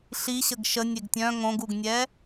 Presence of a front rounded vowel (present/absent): present